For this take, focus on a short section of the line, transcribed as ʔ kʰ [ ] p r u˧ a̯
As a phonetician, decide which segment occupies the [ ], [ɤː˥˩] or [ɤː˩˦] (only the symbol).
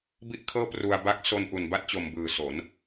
ɤː˥˩